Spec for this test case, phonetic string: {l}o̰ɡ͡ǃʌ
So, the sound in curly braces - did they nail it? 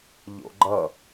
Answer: no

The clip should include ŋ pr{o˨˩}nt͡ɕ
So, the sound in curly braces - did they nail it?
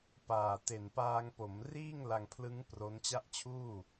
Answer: no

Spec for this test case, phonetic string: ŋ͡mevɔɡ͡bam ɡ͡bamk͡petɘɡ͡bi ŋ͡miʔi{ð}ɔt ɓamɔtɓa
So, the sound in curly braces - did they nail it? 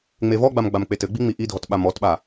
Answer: no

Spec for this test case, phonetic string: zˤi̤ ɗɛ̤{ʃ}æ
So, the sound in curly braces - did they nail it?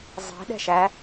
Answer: yes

